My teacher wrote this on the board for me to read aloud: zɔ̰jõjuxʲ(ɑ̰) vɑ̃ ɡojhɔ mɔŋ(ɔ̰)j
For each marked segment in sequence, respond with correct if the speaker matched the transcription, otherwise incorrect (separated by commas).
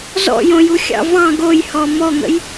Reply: correct, incorrect